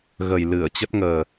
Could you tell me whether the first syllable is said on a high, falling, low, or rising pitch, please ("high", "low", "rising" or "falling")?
low